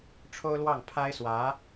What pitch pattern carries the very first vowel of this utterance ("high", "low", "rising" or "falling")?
high